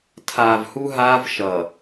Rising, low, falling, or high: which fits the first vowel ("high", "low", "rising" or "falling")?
low